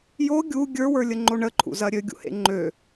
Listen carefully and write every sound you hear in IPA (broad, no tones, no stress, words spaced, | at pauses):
jo ɡʲu ɡʲə˞wə˞lʲəŋ͡ǃo ɳəǃʰṵzɐ ɾʲøɡʲṵhḛ ŋ͡ǃø